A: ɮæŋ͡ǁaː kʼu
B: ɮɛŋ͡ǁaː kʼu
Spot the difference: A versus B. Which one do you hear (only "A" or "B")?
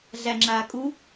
A